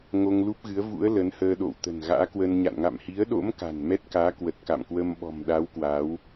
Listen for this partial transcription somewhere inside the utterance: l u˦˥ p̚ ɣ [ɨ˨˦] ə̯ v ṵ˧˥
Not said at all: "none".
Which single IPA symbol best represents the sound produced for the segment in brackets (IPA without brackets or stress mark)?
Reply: ɨ˨˦